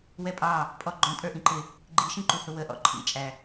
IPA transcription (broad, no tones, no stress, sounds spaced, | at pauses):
w ɛ pʼ ɑ | pʼ ɔ ɡ͡ǃ ɔ̃ tʼ ə˞ ʔ ĩ ǃ ɪ | ɡ͡ǃ i ʃ ĩ ǃ u h ʊ w ə ʔ ɔ̰ ǃʰ ḭ t͡ʃʼ æ